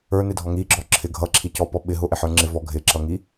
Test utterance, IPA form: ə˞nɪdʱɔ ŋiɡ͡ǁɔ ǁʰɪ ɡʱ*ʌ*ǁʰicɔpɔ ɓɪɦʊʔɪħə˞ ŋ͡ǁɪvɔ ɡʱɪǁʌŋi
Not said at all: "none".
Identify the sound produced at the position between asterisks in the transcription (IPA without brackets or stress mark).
ʌ